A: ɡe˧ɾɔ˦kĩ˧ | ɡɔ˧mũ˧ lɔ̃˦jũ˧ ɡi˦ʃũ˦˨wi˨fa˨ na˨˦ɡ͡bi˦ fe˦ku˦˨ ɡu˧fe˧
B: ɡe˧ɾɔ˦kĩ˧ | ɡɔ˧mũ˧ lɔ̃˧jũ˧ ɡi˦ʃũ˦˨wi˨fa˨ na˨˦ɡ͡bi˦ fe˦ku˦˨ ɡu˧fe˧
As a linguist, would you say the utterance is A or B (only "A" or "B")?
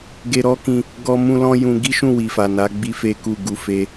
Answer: A